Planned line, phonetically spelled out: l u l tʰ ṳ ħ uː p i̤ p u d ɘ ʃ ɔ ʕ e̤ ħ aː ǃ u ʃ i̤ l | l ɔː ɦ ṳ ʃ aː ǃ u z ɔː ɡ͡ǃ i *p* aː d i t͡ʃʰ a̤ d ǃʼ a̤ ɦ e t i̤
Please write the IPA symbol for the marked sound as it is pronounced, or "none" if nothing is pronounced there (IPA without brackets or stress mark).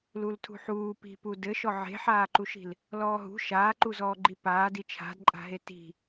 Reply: p